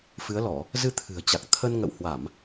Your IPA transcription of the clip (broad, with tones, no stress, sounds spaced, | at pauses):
f ɨ˨˦ ə̯ l ɔ˧˩˨ | z ɨ˧ t̪ʰ ɨ̤˨˩ ə̯ t͡ɕ a˨˩ k̚ t̪ʰ ə˧ n ŋ ə̰˧˨ w h w a˧˩˨ m